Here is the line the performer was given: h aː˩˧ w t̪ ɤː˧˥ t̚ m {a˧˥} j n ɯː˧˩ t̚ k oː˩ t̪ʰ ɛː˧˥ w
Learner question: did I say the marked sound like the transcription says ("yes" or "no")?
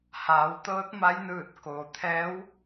yes